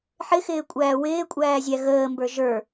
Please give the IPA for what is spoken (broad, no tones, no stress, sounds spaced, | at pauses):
ħ ɪ x ɪː kʷʼ æː w ɪː kʷʼ æː zʲ æ ɣ əː m b ə˞ ʒ ə˞